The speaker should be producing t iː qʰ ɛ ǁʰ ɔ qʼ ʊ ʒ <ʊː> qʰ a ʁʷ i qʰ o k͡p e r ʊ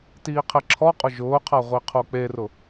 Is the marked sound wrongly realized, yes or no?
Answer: no